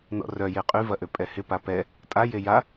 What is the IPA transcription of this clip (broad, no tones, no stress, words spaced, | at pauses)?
nɔ̰rœje qʼy vɐʔøpʼɛhɪ papɛ | tʼaje ja